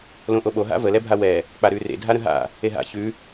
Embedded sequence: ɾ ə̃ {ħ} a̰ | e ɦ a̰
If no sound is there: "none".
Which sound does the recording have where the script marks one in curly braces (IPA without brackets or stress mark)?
ɦ